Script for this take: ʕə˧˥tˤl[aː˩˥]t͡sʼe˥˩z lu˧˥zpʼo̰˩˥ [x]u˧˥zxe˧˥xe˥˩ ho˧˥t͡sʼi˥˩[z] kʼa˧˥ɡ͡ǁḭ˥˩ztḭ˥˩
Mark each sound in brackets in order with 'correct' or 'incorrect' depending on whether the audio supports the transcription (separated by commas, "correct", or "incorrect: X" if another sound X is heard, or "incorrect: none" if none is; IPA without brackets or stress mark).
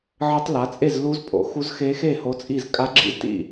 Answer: incorrect: a˩˥, correct, correct